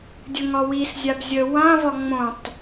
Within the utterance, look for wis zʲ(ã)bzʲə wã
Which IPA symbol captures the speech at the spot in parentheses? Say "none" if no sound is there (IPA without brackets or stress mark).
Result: a